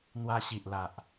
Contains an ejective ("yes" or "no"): no